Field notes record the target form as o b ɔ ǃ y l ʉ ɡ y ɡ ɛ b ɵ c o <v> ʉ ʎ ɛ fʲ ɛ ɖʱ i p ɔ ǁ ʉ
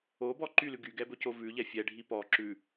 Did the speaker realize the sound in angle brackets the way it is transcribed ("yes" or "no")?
yes